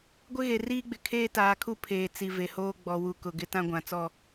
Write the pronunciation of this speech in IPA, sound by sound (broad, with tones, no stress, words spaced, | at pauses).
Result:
ɡʷɪ˦ɣe˨ riː˦ɡ͡bɪ˨ kʰeː˦taː˨kʰu˦ pʰeː˨t͡si˨ ve˨hoː˦ ɡ͡bɔ˨wu˨ kʊ˨ɡɪ˦ tã˦ɡʷã˨t͡sɔ˦˨